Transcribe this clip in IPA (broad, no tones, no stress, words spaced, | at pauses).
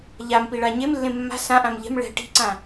ʎam piɭaɲemlːẽ mːa̤ sãʔãm ʎɛ̤m ɭɛ̤ ʈi̤ǀã